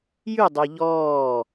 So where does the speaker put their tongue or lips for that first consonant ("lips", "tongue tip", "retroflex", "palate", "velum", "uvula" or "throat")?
palate